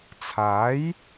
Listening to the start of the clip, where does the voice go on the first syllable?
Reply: rising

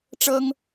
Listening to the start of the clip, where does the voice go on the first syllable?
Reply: high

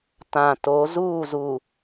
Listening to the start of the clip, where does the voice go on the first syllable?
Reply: low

